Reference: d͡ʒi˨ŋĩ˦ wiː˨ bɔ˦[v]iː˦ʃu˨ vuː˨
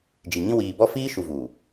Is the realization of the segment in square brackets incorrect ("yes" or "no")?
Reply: yes